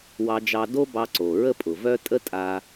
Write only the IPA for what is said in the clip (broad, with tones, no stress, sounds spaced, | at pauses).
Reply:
w ɑ˧ d͡ʒ ɑ˧ d o˥ b ɑ˧ ǀ o˩ ɹ ə˥ pʼ ʊ˩ v œ˥ tʼ ə˥ tʼ a˧